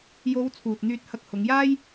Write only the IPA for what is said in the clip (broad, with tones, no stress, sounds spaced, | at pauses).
j o˨˧ w t͡sʰ uː˨ t̚ n̪ yː˧ t̚ h ɐ˧ k̚ h ʊ˨˧ ŋ j aː˥ j